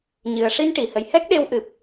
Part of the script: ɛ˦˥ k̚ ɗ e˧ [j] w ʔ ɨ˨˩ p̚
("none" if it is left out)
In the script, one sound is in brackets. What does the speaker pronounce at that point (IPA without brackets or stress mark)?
none